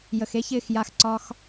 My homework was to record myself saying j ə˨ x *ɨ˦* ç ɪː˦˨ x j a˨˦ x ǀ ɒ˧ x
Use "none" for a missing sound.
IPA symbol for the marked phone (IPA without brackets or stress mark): e˦